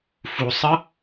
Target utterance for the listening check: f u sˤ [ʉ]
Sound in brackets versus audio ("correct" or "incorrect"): incorrect